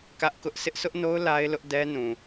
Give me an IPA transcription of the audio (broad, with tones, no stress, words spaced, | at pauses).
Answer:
kä˦ʔkʊ˦ʔ sʰɪ˦ʔsʰʊ˦ʔno˦ʊ̯ la˦ɪ̯lʊ˦ʔ dɛ˦nũ˨